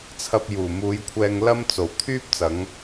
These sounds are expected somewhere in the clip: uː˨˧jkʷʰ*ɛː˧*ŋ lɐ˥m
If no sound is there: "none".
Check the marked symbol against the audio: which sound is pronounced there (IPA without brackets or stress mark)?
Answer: ɛː˧